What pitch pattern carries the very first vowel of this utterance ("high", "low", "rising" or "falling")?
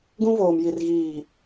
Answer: high